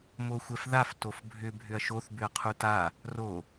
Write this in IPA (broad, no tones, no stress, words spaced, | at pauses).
moxʷɛfðaf tofbʱʏ bʱʏɐ̯ʃoθ bʏɐ̯qʰuta | ro